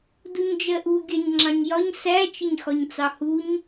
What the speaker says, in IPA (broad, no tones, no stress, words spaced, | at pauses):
duɲd͡ʒɜʔu ɡʲɑɲŋ͡ǁɑ̃ɲjɒɲ sæ t͡ʃɪɲxɒɲt͡sɑhuɲ